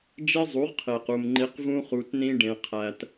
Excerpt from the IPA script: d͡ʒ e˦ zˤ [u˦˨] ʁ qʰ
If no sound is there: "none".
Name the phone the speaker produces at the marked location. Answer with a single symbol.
u˨˦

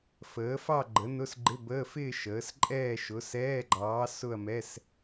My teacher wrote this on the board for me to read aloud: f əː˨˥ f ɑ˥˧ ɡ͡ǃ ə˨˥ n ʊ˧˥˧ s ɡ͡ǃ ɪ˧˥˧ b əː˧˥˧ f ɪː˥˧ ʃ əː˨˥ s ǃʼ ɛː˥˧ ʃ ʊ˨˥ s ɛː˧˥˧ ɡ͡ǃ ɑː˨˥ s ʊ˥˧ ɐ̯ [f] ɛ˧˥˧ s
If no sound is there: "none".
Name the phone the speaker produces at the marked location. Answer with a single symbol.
m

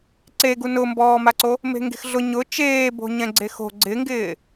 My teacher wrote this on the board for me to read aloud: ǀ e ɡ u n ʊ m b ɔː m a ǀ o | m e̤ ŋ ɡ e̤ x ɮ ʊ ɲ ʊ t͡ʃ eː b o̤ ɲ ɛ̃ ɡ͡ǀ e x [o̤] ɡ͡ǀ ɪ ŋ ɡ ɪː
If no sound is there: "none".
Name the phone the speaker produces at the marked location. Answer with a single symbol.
o̤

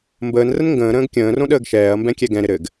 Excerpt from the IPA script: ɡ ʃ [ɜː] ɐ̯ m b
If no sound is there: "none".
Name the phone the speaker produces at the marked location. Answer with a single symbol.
ɛː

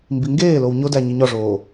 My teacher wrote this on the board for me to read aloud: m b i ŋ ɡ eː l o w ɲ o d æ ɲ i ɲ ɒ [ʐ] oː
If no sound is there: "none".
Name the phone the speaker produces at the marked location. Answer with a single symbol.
ʐ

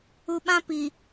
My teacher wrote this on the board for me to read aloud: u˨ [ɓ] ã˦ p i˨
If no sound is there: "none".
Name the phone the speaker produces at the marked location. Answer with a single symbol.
ɓ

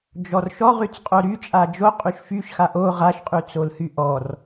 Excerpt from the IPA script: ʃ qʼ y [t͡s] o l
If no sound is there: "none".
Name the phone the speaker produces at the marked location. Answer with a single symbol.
t͡s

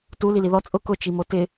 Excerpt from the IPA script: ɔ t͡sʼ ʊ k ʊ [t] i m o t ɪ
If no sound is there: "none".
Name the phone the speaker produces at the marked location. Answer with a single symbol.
t͡ʃ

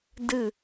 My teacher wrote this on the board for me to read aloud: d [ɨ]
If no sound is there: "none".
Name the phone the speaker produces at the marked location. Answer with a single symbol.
ɨ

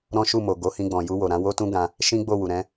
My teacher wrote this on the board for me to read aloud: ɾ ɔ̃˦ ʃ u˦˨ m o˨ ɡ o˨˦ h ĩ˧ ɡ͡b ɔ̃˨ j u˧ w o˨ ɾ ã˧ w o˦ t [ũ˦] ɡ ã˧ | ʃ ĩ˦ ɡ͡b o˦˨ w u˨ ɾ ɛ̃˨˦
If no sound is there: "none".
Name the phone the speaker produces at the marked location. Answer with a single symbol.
ũ˦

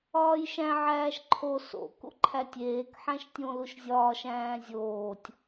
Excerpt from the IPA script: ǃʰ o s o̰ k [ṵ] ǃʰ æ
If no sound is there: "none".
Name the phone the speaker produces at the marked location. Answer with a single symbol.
ṵ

